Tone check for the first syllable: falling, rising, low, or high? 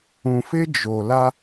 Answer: low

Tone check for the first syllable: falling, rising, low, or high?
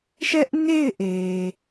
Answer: high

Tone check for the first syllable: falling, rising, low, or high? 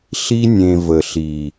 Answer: high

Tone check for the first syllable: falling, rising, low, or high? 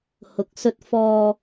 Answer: low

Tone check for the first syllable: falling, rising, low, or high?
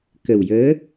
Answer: low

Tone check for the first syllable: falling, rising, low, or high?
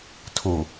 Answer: low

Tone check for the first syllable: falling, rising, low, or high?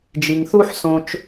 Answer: low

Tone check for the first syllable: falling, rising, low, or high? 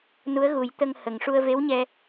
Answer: rising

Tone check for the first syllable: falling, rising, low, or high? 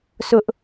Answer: high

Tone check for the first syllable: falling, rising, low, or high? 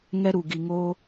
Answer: high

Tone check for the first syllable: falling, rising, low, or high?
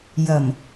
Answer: low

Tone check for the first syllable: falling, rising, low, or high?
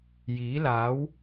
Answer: rising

